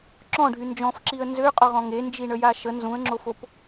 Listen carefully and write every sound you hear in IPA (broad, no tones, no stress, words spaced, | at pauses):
ǁɔ̃ɖʱy nd͡ʒɔ̃fǁiə̯ nzøqʼɔʁɔ̃ ŋend͡ʒiɳəja ʃə nzũə̯ŋ͡ǁofop